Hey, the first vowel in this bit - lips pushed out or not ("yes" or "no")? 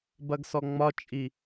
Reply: no